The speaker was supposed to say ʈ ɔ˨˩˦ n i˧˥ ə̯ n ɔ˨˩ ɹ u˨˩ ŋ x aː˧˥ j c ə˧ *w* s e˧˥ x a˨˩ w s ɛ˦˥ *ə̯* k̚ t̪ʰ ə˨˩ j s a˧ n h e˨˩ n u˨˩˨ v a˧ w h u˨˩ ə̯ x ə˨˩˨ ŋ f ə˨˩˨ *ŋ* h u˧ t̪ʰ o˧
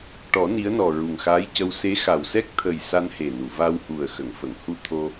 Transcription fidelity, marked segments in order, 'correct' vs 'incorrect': correct, incorrect: none, correct

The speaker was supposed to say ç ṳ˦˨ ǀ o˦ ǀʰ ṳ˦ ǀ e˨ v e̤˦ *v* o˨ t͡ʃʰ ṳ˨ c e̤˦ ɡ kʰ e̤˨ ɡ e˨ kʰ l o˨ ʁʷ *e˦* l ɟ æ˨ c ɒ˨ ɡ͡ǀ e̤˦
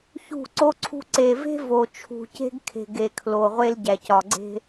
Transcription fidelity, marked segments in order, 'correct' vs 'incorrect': correct, correct

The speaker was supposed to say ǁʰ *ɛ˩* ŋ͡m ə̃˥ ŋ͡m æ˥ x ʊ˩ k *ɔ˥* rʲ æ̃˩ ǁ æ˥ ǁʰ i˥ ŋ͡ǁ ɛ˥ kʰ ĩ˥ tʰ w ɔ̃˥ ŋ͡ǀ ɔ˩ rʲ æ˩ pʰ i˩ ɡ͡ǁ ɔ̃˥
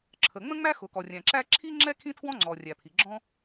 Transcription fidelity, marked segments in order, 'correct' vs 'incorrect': incorrect: ə˩, incorrect: ɔ˩

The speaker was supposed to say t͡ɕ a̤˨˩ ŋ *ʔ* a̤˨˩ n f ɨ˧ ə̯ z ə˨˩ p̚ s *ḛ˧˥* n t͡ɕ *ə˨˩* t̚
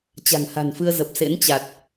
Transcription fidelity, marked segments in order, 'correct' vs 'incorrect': incorrect: h, correct, incorrect: a˨˩

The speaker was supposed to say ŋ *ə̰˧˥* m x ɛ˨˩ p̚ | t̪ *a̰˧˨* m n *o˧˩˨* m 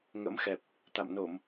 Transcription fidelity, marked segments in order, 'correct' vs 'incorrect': correct, correct, correct

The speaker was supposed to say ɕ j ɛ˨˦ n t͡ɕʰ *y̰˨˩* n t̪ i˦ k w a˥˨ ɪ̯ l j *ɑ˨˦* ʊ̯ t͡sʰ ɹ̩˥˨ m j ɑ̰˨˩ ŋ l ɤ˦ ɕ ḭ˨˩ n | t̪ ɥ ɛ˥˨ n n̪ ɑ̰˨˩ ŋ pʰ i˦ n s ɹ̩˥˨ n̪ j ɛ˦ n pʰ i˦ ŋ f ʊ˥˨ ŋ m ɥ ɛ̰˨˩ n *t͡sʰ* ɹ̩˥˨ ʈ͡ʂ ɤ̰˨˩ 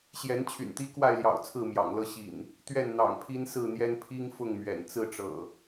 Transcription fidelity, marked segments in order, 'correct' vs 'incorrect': correct, incorrect: ɑ̰˨˩, incorrect: t͡s

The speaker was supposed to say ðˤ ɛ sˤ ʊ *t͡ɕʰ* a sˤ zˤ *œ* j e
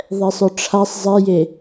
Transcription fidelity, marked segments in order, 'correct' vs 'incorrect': incorrect: ʈ͡ʂʰ, incorrect: ɛ

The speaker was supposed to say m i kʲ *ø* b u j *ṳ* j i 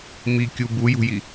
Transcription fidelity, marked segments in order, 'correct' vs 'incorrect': incorrect: u, correct

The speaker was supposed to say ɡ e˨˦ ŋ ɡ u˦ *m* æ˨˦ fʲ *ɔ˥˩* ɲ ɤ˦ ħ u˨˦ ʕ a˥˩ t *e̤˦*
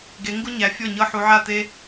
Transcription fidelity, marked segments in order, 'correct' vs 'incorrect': incorrect: ɲ, correct, incorrect: e˦

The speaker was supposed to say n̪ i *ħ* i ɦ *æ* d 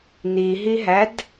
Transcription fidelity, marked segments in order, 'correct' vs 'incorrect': incorrect: ɦ, correct

